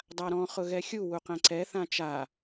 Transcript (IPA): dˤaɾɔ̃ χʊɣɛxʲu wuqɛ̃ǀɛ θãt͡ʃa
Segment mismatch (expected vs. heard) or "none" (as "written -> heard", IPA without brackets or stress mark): none